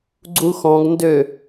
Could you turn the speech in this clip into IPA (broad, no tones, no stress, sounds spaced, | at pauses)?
ɡ͡ǀ u x ɔ̃ ɡ n d ø